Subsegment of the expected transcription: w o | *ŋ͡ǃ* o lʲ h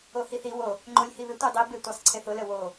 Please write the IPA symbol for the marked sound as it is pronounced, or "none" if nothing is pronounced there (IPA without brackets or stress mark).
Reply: ŋ͡ǃ